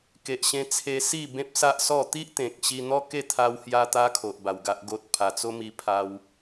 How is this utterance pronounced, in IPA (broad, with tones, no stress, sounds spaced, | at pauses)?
k e˨ ʔ ɕ ẽ˧ t͡sʰ e˧ s i˥˧ b ẽ˦ p̚ s a˦ ʔ s ɔ˥˧ t̪ i˦ ʔ t̪ ẽ˨ k̚ ɕ i˧ n̪ ɔ˦ k e˥˧ t̪ʰ a˧ w h j a˧ t̪ a˦ kʰ o˨ ʔ b a˨˩ w ɡ a˦ ʔ ɡ o˦ t̚ pʰ a˨˩ t͡s o˦ m i˧ pʰ a˦ w